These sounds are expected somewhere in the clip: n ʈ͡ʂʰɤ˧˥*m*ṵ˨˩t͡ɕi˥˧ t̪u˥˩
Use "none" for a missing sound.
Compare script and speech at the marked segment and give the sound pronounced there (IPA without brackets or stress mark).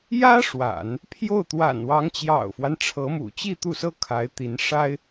m